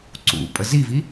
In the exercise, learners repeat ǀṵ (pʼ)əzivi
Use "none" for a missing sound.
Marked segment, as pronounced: pʼ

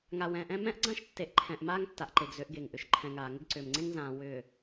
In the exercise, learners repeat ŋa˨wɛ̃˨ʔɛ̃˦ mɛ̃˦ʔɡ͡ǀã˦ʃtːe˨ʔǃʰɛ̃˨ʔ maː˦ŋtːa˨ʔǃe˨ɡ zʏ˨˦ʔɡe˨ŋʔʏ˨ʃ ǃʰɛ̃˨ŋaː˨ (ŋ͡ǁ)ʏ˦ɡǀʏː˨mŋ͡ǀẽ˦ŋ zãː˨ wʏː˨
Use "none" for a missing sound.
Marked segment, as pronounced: ŋ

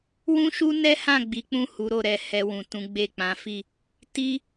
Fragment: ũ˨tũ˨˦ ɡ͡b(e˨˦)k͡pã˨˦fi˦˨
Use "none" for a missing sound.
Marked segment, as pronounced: e˦˨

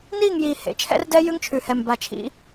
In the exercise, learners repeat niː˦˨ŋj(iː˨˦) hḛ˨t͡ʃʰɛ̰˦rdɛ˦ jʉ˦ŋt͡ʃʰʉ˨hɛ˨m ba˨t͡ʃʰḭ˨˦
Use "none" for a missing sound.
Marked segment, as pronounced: iː˨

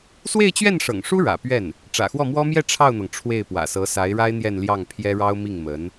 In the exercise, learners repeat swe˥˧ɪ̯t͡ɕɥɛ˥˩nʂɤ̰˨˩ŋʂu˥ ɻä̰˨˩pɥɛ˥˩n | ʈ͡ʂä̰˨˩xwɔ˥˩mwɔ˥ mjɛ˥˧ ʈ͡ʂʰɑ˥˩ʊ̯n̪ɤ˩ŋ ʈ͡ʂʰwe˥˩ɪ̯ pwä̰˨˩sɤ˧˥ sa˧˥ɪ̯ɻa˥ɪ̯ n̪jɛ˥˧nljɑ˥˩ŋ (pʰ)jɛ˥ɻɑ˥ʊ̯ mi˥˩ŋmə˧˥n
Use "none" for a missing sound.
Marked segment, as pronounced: pʰ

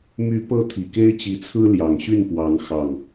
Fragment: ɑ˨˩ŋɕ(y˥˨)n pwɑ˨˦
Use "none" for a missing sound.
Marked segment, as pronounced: y˥˨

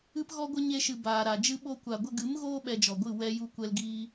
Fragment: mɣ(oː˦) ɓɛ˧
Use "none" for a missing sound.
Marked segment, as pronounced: oː˦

